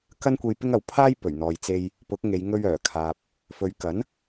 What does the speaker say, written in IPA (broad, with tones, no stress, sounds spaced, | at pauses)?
k ɐ˥ n kʷ e˧ j p ɪ˥ ŋ ɐ˨ w pʰ aː˥ j p ɵ˨˩ ɥ n̪ ɔː˨ j t͡s e˧ j | p ʊ˨˥ k̚ ŋ e˨˧ j ŋ ɵ˧ ɥ œː˨˩ kʰ aː˨ p̚ | f ɵ˨˧ ɥ k ɐ˨˥ n